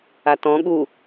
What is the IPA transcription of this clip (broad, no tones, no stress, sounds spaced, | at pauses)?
a t ɔ̃ ɠ u